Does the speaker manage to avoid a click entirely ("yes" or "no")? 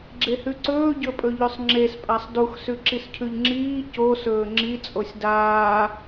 no